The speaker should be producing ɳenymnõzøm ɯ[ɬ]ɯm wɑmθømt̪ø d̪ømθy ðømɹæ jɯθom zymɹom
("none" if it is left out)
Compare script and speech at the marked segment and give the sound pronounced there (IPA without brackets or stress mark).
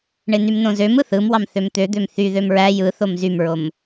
θ